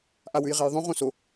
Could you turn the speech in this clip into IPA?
ʔawʉjʁejðˤõ ʁõso

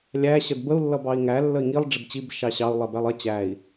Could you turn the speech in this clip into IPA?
lʲæ ɕədbəu̯ lːʌbɑi̯ŋæ lːəi̯ŋilˠ ɖ͡ʐɪbt͡ɕib ʃɑɕɑu̯ lˠɛbælˠʌ t͡ɕæi̯

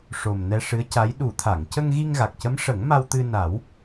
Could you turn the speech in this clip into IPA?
ʂo˨˩m nɛ˧ʂɨ˧˥ə̯ca˧˥j ɗu˨˩˦t̪ʰa˨˩˨ŋ cə˧ŋɣi˧ŋɣa˨˩k̚cə˧˥m ʂə˨˩˦ŋma˧wt̪ɨ˧ na˨˩˦w

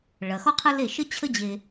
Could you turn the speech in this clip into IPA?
ɭɐ˩xɔ˥qʰɐ˥le˥˩ ʃə˥t͡ɕʰə˥d͡ʑe˧

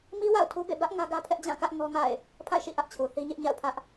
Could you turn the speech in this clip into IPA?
mi˦ wa̰˦˨ʊ̯tʰu˦bḛ˦˨ bä˦ʔ ŋä˦ɡä˦pʰɛ˦ʔ d͡ʑã˦˨kä˦ʔ ŋɔ˦ŋa̰˦˨ɪ̯ | pʰa̰˦˨ɪ̯ʃḭ˦˨ ʔä˦ʔt͡ɕʰu˨ θi˦ɲɪ˦ʔɲa̰˦˨ʊ̯pʰä˦ʔ

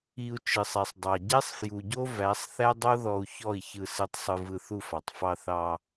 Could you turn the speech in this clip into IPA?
i˧u̯ t͡ʃɯ˨sˤɛ˨sˤdˤɑ˨ ɟɛ˦sˤfju˨ɟo˦ væ˨˦sˤ θæ˦dˤo˦ ðɔ˧u̯çɔ˦˨i̯ çɯ˧sɯ˧tˤsˤɯ˧ vɯ˧θu˦˨fɑ˨tˤ fɑ˧ θɑ˧

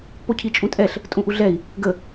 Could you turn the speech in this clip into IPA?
pocʰit͡ʃʼũtʼɛɬ | tʼũʔuɮɛi̯ | ɡə

